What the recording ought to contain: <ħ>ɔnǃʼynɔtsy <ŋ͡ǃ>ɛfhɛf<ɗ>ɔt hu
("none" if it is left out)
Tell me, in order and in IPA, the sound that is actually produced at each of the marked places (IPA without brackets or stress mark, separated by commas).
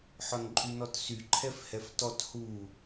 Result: ħ, ǃʰ, t